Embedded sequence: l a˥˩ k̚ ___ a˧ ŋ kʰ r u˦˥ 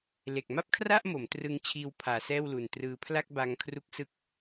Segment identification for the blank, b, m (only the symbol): b